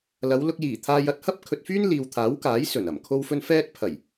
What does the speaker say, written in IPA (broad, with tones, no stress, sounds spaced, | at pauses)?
l ɐ˨˧ w l ʊ˧ k̚ j iː˨˩ t̪ʰ aː˧ j ɐ˧ t̚ h ɐ˥ p̚ kʰ ɵ˨ t̚ f yː˥ n l iː˧ w t̪ʰ aː˨˥ w k aː˨˥ j s ɵ˨˩ n ɐ˨˩ m kʰ o˥ w f ɵ˥ n f ɛː˥ t̚ pʰ ɐ˨˩ j